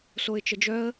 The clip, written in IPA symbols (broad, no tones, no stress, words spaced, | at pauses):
soɪ̯t͡ʃəd͡ʒœə̯